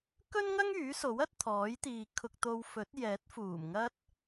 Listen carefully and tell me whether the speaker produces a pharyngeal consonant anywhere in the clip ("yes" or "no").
no